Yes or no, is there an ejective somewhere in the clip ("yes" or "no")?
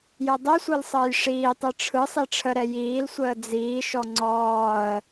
no